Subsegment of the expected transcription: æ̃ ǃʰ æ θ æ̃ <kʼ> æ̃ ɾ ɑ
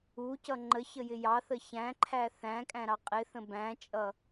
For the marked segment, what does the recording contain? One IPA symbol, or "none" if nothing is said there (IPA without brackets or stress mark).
kʼ